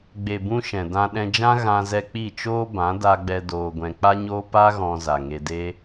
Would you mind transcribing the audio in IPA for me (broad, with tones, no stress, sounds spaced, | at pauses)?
ɡ͡b e˨ b ũ˧ ʃ ɛ̃˨ d ã˧ ɗ ɛ̃˧ d͡ʒ ã˦ ɣ ã˧ z ɛ˧ k͡p i˦˨ t͡ʃ oː˦ b ã˨˦ d a˧ ɡ͡b ɛ˧ d oː˧ ɡʷ ɛ̃˧ k͡p a˦ ɲ oː˦ p a˦ ɣ ɔ̃˧ z a˨ ŋ e˧ d e˦